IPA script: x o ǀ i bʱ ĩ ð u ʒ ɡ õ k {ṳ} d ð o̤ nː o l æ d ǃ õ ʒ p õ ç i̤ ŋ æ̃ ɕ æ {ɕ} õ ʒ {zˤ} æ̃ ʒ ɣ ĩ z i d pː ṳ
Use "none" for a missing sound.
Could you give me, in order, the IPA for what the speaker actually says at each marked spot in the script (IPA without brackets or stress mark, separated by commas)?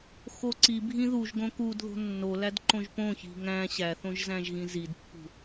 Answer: u, θ, z